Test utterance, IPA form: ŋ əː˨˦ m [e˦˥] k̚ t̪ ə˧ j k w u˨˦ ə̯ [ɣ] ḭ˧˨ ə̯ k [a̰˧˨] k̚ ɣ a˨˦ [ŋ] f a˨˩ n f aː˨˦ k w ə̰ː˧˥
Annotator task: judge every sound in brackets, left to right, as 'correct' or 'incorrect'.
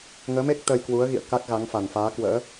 correct, correct, incorrect, correct

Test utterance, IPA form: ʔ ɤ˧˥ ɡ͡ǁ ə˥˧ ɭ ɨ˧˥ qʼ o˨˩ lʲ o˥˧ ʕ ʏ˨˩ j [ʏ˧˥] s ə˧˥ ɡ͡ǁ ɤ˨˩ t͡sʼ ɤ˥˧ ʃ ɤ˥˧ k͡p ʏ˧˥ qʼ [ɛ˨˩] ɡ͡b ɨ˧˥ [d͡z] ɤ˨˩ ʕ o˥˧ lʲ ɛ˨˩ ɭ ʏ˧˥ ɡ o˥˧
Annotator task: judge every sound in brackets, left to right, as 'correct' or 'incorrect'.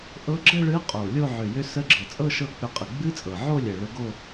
correct, incorrect, incorrect

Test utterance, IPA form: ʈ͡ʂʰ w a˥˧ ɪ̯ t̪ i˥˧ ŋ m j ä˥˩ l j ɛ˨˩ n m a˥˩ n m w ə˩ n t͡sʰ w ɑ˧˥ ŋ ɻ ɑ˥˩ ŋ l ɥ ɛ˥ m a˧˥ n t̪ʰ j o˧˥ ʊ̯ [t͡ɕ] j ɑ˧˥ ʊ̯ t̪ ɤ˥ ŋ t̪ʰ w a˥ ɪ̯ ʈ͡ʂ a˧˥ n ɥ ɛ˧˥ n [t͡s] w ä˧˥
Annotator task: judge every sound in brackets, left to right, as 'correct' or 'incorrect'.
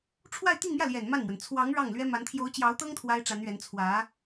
correct, incorrect

